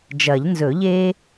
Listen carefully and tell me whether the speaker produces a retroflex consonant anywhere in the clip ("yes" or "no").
no